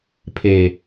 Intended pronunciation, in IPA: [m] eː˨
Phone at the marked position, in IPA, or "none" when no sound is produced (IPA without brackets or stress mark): pʰ